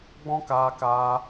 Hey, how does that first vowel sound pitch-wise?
high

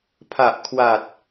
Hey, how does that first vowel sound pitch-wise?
low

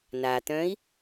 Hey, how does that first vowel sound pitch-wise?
low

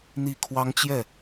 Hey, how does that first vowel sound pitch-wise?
falling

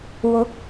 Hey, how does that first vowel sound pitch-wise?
rising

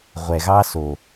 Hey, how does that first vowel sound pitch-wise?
low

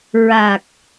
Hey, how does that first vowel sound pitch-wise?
low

